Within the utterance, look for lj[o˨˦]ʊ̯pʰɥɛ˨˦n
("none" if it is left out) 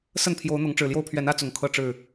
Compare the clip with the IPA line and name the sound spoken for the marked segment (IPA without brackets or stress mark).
o˦